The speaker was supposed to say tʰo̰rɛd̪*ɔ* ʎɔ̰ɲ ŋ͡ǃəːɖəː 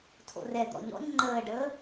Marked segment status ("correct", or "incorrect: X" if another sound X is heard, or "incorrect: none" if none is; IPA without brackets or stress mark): incorrect: ɔ̰